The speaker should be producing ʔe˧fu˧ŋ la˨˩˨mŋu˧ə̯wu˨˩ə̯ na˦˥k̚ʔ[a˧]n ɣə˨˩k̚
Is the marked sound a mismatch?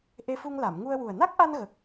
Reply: no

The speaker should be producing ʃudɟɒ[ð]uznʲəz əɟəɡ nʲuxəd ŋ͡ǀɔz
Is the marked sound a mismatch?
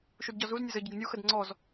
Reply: yes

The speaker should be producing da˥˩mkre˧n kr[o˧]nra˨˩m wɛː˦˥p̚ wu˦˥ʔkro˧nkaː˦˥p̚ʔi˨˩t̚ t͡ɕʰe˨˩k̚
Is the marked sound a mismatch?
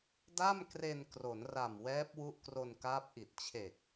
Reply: yes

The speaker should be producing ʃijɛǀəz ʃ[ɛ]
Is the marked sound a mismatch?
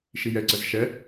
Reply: no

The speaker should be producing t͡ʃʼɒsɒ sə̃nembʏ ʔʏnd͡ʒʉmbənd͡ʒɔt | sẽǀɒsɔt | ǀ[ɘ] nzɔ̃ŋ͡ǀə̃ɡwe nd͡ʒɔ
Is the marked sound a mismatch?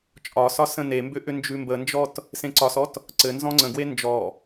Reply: no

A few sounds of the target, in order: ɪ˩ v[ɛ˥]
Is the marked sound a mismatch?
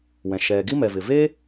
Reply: yes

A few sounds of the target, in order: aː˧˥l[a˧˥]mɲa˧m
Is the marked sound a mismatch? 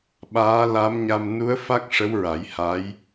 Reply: no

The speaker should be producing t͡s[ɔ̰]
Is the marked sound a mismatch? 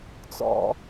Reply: no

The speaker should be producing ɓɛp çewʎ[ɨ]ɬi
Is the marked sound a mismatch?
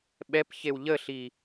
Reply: yes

